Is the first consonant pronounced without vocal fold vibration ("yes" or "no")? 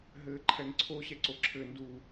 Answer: no